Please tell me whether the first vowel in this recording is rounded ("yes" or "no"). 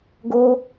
yes